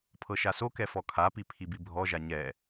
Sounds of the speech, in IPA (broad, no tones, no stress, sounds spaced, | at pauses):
pʰ ɤ ʃ a s o k ɛ f ɔ kʰ a p i pʰ i b i bʱ ɔ ʒ a ɲ ɛ